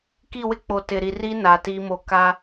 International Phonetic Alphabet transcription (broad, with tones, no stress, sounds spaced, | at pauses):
k i˦˨ w ɪ˦ k͡p o˨ t ɪ˨ ɾ i˨ r i˦ n a˨ t i˦ m o˦ k a˦